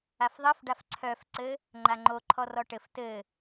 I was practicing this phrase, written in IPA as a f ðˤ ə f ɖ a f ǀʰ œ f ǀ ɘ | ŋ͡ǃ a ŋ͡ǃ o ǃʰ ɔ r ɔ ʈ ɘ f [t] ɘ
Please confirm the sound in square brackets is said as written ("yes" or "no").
yes